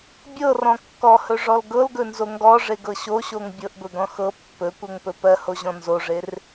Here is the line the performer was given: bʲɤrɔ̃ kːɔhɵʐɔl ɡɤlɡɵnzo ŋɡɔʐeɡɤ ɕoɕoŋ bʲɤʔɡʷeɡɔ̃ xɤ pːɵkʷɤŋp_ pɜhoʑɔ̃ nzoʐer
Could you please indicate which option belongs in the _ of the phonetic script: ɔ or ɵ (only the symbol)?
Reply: ɵ